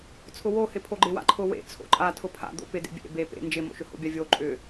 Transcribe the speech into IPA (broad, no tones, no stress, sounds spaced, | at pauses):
t͡sʰ ʊ w o h ɪ pʰ o ɡ͡ǃ ɪ w a̰ ǃʰ ʊ w ḛ t͡sʰ o̰ ǃʼ a tʰ ʊ pʰ a̰ d̪ o̰ p ɪ d ḛ bʲ ḛ b e p ḛ n d͡ʒ ɪ m o̰ ʃ ʏ h o̰ bʲ a vʲ o ǃʼ ʏ